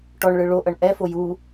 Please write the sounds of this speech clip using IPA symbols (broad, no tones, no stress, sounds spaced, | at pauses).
ʈ ɔ ɳ ɭ ɯ ɭ o ʔ ɤ ɳ ʔ ɛ f o j u